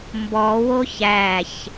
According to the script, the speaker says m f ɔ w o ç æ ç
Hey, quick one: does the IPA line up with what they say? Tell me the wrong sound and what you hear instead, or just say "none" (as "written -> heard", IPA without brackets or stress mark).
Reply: f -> b